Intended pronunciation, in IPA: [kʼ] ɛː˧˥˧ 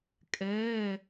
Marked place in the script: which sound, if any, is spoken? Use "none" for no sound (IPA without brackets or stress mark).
kʼ